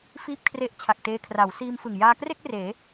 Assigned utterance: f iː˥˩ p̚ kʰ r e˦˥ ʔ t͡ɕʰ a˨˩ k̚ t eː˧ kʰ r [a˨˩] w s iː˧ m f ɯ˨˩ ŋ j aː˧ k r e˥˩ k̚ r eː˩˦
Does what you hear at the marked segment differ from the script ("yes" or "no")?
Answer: yes